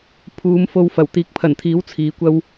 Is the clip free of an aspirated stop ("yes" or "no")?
no